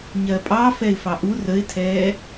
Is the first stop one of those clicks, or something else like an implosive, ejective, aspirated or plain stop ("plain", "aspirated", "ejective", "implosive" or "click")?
ejective